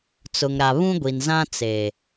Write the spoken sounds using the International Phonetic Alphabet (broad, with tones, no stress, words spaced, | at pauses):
t͡sʊ˨ŋɾa˨ βũ˦ɡʷi˨nzã˦ t͡se˨